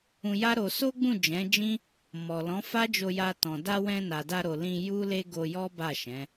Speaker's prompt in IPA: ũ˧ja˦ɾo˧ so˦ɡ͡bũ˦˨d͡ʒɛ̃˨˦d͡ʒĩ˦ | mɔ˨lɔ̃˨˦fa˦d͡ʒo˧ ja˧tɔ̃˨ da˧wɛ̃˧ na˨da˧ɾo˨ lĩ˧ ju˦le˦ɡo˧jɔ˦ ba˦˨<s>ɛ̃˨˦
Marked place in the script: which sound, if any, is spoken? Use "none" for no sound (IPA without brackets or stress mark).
ʃ